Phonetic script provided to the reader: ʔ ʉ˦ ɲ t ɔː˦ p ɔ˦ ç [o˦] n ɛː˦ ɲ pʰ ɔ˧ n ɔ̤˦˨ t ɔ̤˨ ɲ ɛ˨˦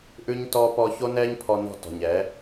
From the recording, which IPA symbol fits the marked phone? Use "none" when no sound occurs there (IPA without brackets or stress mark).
o˦